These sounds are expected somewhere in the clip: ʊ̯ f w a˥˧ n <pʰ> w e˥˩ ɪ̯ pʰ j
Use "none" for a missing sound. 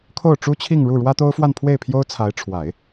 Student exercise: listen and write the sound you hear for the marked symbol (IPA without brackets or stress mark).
pʰ